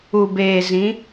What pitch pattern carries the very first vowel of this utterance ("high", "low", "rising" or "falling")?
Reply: low